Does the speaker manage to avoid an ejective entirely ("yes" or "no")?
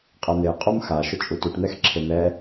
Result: no